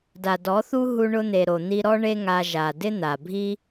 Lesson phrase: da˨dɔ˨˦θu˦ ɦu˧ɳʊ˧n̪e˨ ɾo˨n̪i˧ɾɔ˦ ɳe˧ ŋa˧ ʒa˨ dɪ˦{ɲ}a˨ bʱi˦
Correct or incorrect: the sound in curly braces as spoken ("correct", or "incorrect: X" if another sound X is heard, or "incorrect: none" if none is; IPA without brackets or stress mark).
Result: incorrect: n̪